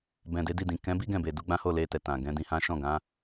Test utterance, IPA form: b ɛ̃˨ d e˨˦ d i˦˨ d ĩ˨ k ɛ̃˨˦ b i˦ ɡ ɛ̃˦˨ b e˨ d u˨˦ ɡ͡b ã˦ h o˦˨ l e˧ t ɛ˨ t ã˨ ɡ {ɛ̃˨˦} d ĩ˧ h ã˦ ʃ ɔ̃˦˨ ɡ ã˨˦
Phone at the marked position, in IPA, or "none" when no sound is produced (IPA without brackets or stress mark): ɛ̃˨˦